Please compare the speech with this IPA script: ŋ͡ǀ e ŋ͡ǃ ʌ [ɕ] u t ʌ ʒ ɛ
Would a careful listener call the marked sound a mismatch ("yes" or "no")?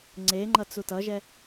yes